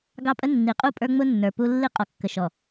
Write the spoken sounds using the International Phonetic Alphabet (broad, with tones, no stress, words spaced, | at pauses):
ɡɑ˦pʼə˦ nːi˨qʼu˦˨ pʼə˞˦ŋ͡mʊ˦nːə˞˨ pu˦ lːi˦qʼɔ˨kːə˨ʃɔ˨